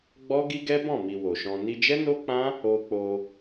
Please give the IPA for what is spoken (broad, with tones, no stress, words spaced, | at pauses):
ɡ͡bɔ˦ ɡi˦ɡɛ˦bɔ̃˦˨mi˨ wo˨ʃɔ̃˧ ni˧d͡ʒɛ˦no˦k͡pã˦ | o˧k͡po˧